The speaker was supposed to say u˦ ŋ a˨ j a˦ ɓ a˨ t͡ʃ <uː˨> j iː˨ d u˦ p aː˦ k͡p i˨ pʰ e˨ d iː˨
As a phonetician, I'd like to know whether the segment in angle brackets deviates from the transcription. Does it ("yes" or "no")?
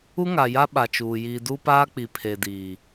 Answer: no